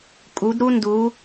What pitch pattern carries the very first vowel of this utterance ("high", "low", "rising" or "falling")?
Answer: rising